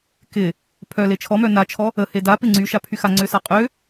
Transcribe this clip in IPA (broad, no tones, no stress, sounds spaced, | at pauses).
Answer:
k ɪ | pʰ œ l e t͡ʃʰ ɔ m œ n a t͡ʃʰ ɔ | ə h e d a p ɪ ŋ͡ǀ y ʃ a pʰ y x a ŋ͡ǀ ø s a qʼ ø